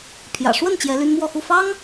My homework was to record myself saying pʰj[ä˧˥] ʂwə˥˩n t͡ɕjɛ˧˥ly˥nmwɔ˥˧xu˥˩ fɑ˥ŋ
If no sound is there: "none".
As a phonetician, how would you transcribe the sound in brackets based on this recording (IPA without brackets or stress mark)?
ä̰˨˩